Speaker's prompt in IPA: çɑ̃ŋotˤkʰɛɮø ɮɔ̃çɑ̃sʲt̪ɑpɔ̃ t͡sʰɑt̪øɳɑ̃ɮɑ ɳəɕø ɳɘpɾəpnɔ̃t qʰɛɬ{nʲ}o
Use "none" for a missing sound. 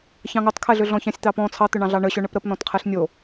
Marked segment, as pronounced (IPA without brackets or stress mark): nʲ